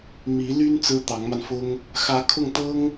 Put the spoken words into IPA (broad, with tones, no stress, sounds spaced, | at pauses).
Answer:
m i˧˥ l y˥ n t͡s ɹ̩˥ t̪ ɑ˧˥ ŋ m a˧ n f ʊ˥ ŋ | x ä˧˥ kʰ ʊ˥˩ ŋ t̪ ɤ˥ ŋ